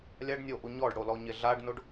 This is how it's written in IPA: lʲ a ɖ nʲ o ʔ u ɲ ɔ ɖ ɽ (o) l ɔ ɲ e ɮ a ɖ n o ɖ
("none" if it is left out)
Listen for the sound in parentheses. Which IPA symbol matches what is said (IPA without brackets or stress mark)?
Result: o